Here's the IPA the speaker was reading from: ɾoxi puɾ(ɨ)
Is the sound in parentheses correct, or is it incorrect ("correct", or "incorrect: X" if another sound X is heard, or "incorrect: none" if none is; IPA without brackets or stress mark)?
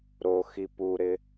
incorrect: ɪ